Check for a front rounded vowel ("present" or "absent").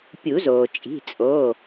absent